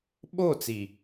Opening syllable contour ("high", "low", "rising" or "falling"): falling